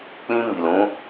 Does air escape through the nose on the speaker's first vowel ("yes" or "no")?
yes